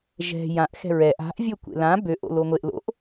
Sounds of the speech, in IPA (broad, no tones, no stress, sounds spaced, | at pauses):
ʒ ɛ̤ j ã ʔ x ɛ̤ ɹ ɛ ʔ a̤ ʔ vʲ ɵ kʷ ḛ l ã b ø ʔ o̰ l o ŋʷ e ʔ l o̰ ʔ